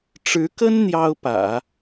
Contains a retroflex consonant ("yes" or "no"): yes